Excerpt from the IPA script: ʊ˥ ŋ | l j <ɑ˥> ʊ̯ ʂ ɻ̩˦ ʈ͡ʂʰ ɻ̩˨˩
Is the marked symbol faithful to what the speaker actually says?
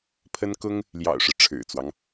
no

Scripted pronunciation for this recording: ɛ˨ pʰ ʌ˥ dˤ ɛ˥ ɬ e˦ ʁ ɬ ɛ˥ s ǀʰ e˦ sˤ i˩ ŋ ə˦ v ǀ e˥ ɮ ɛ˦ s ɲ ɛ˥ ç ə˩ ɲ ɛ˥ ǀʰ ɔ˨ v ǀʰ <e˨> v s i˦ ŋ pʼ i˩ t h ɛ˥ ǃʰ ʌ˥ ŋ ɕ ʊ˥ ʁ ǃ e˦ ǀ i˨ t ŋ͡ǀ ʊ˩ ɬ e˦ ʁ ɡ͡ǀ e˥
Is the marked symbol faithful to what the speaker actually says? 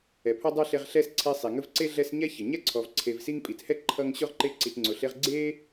yes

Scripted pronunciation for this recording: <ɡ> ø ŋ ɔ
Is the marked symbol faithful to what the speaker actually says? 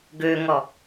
yes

